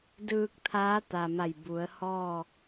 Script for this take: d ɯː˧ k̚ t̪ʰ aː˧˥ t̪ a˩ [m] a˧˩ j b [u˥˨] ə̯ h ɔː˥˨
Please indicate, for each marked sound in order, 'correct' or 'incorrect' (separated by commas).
correct, incorrect